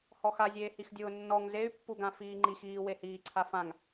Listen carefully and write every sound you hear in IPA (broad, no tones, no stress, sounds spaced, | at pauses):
h ɔ x a zʲ eː h i x dʲ ʊː nː ɔ ŋ z e y̯ pː u ɡ ã f iː ŋ͡ǃ i x iː w e h iː ǀʰ a f ã ŋ